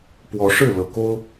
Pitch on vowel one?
rising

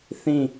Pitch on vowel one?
falling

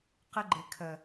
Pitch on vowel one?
high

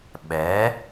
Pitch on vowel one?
rising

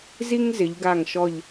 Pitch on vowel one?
high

